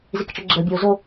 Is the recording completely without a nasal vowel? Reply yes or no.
yes